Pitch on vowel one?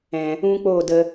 low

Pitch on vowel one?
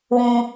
high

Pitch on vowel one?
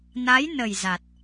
rising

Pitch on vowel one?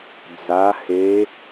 rising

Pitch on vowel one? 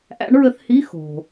rising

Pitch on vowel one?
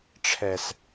low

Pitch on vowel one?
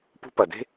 high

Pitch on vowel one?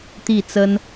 falling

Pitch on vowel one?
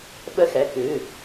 falling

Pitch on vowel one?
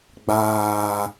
low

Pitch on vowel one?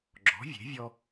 rising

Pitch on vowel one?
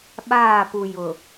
falling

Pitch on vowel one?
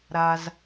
low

